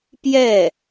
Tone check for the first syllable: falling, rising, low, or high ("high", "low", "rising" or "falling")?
falling